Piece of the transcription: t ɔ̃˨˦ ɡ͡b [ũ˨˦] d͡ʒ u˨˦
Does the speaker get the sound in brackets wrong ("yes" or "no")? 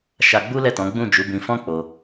yes